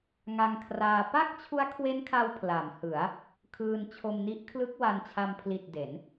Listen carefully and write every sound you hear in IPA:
ŋ a˧ ŋ kʰ r aː˧ p a˥˩ k̚ t͡ɕʰ u˦˥ a̯ kʰ w e˦˥ n kʰ a˧ w pʰ l a˩˦ m h ɯ˩˦ a̯ | kʰ ɯː˧ n t͡ɕʰ o˧ m n i˦˥ ʔ kʰ l ɯ˦˥ k̚ w a˧ n t͡ɕʰ a˧ m pʰ l i˨˩ t̚ d e˩˦ n

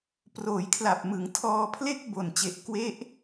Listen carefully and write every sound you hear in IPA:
p r oː˩˦ j kʰ l a˨˩ p̚ m ɯ˩˦ ŋ tʰ ɔː˧ pʰ l e˥˩ k̚ b o˨˩ n t͡ɕ e˨˩ ʔ k w e˦˥ ʔ

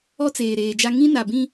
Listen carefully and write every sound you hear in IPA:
ɔ˦ t͡s eː˨ ɾ eː˨ d͡ʒ a˦ ŋ ĩ˦ n a˨ b ĩ˦

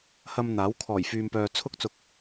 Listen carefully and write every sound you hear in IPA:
h ɐ˧ m n̪ aː˨˥ w kʰ ɔː˨˩ j f yː˨ m p œː˨ t͡sʰ ʊ˧ k̚ t͡s ʊ˨˥ k̚

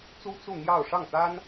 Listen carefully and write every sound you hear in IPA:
t͡s u˥ t͡s u˥˧ n̪ j ɑ˥˧ ʊ̯ ʂ ɑ˥˩ ŋ t̪ a˥ n

